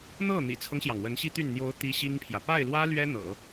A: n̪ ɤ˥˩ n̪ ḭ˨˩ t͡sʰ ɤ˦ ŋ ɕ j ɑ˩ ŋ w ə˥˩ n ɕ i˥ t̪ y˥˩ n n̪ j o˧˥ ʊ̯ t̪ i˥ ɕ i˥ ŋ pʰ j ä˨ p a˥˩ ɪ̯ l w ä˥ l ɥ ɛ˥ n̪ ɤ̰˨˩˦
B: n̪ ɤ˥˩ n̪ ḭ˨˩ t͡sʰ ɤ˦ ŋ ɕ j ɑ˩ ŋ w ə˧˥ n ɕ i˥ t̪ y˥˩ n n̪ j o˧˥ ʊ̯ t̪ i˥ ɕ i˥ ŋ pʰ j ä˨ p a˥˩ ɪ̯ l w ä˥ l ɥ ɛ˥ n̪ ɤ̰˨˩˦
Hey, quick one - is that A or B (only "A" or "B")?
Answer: B